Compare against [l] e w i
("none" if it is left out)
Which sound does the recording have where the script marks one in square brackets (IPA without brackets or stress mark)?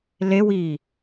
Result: l